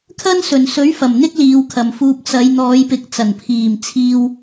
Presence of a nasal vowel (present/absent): absent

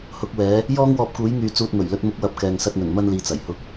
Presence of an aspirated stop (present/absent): absent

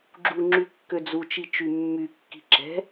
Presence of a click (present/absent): present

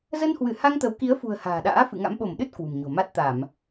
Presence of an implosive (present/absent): present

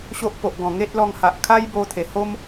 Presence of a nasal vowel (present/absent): present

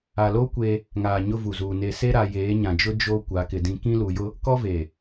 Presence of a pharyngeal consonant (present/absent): absent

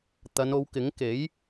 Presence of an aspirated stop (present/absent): absent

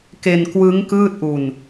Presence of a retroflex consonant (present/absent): absent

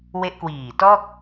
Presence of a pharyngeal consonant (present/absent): absent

